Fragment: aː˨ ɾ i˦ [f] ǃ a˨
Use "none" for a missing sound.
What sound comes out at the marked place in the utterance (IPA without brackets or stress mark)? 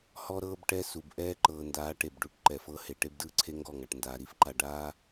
f